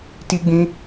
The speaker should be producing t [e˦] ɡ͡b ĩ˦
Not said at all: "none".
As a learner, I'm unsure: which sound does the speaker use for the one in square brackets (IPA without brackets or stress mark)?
i˦